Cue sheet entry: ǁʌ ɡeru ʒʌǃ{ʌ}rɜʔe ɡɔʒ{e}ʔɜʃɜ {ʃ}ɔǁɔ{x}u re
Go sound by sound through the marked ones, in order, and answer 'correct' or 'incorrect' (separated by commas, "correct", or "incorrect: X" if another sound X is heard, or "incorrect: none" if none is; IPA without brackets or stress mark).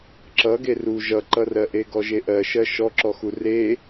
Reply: correct, correct, correct, correct